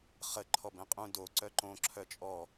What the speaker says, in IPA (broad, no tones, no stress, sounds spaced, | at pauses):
χ ə ǃʰ ɔ b ɛ̃ qʼ ũ d o ǀ œ ǃ õ ǁʰ œ t͡ʃʼ ɔ